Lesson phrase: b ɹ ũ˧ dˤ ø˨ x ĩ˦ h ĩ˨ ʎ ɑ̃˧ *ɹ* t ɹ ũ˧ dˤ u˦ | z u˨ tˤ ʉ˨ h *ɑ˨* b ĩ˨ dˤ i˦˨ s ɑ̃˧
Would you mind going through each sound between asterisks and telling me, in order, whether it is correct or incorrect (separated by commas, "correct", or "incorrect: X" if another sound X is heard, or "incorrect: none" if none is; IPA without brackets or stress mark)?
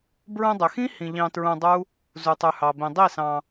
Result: incorrect: none, correct